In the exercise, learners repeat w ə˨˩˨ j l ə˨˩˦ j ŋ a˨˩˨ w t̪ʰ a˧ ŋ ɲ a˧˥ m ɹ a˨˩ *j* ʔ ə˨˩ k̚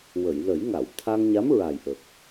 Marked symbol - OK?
yes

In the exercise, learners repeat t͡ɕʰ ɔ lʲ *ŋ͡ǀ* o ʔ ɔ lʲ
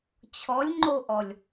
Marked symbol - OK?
no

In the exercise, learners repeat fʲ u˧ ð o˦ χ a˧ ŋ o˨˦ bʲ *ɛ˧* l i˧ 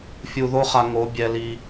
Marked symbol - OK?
yes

